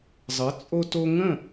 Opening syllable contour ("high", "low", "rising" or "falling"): rising